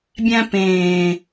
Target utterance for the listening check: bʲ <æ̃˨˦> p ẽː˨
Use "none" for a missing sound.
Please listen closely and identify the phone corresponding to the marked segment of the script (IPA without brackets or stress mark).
æ̃˦